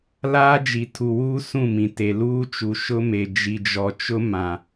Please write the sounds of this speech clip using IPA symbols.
l aː˦ d͡ʒ i˨ tʰ u˨ w uː˦ s ũ˦˨ m ĩ˨ t e˨ l uː˦ t͡ʃ u˨ ʃ ʊ˦ m e˨ d͡ʒ i˨ d͡ʒ ɔ˨ t͡ʃ ʊ˦ m ã˨

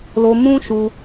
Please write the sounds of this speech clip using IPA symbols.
l o˧ m ũ˦ ʃ u˧

